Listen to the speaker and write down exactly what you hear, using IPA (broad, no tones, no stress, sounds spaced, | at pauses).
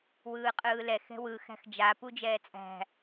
w ɯː qʼ ɯː l ɛ x ɛ̤ w ɯ x æ̤ x d͡ʒ a p u d͡ʒ ɛː t͡sʼ æ̤